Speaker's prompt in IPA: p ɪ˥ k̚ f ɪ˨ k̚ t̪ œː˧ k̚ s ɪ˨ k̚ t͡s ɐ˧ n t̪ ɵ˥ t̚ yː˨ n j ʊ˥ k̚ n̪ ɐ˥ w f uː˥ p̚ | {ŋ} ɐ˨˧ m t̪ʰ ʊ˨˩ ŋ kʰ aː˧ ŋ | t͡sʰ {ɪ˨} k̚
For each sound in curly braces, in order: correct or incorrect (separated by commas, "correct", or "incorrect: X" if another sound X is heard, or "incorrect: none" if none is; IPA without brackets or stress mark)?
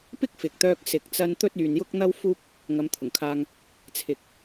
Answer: correct, correct